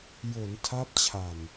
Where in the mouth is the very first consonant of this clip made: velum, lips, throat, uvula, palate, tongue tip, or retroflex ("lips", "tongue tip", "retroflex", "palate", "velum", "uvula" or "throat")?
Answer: palate